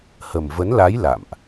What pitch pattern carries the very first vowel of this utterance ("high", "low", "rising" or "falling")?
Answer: low